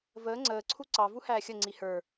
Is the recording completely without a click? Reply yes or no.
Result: no